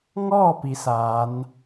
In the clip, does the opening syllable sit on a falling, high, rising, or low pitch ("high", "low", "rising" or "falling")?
falling